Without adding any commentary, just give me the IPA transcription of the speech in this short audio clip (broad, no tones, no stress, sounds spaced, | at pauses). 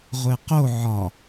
ʁʷ e q o ʕ ɒ